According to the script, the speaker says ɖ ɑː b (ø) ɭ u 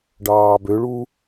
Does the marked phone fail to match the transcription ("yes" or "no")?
no